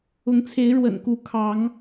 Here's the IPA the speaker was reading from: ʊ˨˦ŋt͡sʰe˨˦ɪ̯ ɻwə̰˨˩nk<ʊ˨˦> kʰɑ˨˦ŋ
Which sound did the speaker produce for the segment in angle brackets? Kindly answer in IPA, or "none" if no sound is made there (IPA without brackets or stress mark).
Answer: u˨˦